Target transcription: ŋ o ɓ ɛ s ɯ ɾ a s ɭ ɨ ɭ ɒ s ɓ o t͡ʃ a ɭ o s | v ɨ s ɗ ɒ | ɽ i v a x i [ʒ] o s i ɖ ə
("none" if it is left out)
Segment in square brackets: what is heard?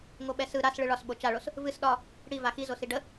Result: z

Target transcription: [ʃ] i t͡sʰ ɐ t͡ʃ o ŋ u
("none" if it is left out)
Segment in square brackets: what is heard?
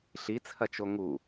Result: ɬ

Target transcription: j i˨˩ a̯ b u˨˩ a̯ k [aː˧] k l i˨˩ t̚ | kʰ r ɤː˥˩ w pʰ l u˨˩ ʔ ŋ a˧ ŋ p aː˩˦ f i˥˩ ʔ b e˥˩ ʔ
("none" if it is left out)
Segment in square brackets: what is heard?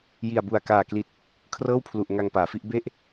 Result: aː˨˩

